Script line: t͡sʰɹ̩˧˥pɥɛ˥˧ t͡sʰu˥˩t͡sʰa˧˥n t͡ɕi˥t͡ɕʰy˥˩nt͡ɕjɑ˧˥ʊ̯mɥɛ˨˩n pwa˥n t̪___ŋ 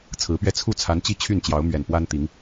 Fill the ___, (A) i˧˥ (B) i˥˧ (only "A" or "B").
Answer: A